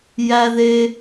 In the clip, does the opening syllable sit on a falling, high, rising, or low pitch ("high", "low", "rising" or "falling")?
high